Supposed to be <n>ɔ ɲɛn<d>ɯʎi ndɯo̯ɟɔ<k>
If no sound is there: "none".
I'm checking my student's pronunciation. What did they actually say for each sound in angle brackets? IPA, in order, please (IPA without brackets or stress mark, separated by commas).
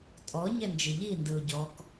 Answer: tʼ, d͡ʒ, k